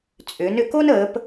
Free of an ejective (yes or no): no